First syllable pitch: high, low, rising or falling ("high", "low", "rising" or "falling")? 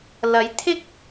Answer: rising